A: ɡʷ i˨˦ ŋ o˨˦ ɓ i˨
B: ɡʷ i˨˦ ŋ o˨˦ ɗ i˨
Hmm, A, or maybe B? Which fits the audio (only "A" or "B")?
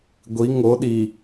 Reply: B